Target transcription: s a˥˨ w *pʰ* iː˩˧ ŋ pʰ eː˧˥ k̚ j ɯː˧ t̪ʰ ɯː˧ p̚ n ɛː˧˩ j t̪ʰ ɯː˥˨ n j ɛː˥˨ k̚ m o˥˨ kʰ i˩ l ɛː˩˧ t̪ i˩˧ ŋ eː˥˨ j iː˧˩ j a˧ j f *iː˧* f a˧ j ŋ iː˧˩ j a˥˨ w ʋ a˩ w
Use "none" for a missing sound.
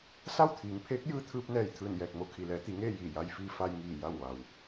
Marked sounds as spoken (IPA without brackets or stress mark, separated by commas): t̪ʰ, iː˧